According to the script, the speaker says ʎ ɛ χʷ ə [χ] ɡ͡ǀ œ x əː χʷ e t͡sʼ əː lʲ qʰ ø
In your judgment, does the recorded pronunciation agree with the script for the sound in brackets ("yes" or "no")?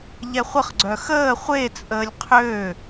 yes